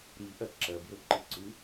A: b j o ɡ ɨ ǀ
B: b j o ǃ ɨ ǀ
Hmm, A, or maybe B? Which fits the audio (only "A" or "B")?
B